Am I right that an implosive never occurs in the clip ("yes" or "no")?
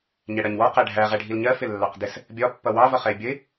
yes